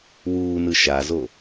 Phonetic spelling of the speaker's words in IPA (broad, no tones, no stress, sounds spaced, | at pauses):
w uː n ɯ ʃ a z o